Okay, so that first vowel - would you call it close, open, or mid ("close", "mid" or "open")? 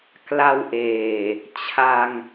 open